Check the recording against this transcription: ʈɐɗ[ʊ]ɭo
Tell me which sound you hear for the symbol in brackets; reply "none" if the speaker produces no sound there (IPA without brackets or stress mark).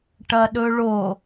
ɵ